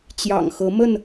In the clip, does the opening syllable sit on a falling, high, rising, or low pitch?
low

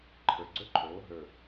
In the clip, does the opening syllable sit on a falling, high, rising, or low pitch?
low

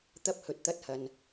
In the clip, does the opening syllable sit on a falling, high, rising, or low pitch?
high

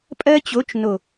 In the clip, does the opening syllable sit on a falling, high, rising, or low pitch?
high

